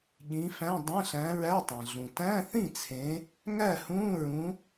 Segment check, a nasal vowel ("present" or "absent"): present